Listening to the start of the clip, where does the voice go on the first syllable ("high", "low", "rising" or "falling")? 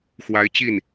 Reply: rising